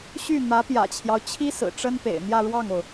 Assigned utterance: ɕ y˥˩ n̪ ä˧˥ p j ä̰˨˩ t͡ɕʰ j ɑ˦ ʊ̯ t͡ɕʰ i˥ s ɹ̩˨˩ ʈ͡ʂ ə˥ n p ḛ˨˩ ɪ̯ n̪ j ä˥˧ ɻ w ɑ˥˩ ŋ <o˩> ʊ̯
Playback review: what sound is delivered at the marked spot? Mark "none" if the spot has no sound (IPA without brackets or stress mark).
o˩